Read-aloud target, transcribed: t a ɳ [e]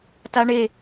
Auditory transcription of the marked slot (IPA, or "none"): e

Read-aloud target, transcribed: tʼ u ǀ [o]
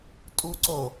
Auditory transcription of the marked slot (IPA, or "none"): o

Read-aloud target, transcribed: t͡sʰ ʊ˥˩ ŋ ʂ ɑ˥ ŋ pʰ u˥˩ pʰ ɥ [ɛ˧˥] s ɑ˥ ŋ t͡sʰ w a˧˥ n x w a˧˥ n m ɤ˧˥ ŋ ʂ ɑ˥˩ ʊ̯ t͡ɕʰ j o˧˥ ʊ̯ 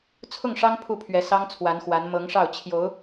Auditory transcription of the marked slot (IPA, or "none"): ɛ˧˥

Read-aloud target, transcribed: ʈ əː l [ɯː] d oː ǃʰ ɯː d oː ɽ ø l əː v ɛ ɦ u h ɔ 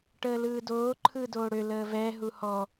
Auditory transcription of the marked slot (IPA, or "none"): ɯː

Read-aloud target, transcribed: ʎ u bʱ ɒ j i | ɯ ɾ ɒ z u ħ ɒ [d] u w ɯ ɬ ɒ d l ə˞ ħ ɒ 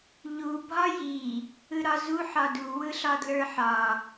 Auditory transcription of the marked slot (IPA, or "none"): d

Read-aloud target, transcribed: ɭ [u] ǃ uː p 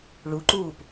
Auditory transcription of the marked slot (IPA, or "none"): u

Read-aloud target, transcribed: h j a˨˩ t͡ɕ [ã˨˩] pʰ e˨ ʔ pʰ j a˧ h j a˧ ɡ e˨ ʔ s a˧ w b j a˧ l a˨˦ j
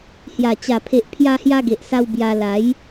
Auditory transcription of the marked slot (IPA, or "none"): a˨˩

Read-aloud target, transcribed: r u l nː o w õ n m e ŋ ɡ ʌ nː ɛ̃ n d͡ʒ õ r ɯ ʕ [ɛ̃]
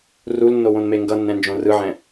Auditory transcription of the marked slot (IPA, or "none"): ɛ̃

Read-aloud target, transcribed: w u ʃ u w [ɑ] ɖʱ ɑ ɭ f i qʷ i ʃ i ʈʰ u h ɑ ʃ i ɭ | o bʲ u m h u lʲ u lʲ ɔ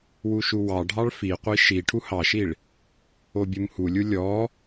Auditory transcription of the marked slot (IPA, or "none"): ɑ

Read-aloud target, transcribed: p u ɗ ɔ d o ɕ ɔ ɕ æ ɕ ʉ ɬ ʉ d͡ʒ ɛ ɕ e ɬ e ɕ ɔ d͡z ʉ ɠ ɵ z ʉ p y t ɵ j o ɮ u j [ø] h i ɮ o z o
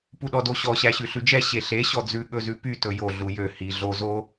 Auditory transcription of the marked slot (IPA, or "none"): ø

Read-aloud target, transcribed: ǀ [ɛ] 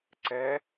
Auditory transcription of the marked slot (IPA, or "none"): ɛ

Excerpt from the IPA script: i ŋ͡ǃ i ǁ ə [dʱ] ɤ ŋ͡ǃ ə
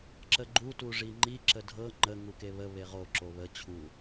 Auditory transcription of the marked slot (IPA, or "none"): dʱ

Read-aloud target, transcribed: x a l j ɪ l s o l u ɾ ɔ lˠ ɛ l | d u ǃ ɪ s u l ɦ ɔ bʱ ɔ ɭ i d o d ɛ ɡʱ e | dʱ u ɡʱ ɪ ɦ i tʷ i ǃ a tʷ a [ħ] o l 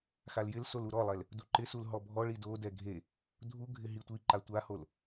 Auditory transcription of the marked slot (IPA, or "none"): h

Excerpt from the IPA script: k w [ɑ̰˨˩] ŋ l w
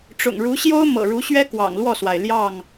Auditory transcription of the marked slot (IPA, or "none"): ɑ̰˨˩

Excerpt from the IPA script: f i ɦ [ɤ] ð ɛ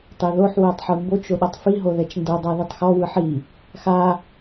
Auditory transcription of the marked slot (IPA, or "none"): o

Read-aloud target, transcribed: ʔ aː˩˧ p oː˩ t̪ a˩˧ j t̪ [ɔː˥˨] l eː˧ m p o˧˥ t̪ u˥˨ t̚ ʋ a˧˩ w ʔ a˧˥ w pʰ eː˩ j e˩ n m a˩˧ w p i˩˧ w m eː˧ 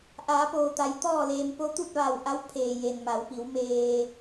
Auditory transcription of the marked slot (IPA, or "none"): ɔː˥˨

